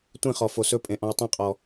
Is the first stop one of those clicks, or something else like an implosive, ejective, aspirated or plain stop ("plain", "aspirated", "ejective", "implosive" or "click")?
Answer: plain